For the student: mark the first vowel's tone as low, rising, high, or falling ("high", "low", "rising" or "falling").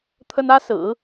high